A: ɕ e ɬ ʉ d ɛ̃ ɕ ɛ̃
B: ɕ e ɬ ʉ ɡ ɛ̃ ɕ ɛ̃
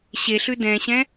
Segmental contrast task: A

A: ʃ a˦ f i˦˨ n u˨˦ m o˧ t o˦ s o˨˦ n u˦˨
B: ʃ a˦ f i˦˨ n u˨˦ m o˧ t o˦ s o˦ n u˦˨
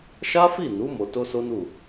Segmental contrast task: B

